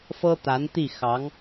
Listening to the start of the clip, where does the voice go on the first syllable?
high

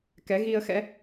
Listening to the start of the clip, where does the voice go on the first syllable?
rising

